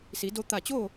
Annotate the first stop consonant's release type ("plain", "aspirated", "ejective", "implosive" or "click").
plain